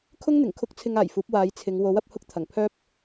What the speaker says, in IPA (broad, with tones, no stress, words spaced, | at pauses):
kʰʊ˥ŋn̪ɪ˨˩ŋ kʰʊ˥k̚t͡sʰɪ˧ŋaː˨˩jfuː˨˥p̚ waː˨˧jt͡sʰɪ˨˧ŋ wo˨˥wɐ˧p̚hʊ˧k̚t̪ʰɐ˨˩ŋ pʰœː˥p̚